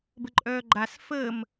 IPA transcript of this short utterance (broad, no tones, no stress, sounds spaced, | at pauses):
b ə ǃʼ œː ɡ͡ǃ a s f əː m